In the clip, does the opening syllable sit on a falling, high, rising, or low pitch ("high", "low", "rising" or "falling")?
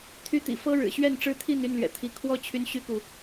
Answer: high